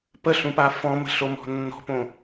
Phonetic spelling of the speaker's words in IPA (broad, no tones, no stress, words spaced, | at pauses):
pəɬũpa fɔ̃mə̤ɬomɔ̤ nːɔ̤põ